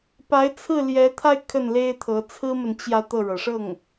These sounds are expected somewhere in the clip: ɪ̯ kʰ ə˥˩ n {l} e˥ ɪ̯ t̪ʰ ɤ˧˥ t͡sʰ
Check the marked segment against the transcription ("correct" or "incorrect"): correct